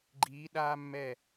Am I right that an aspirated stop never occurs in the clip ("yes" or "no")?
yes